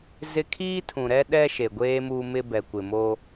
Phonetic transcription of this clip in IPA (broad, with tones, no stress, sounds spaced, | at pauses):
z ɪ˦ kʰ iː˦ tʰ ũ˨ ɾ ɛ˦ ɗ ɛ˦ ʃ e˨ ɡʷ eː˦ m uː˦ m ɪ˦ b ɛ˨ kʷ ɪ˨ m o˦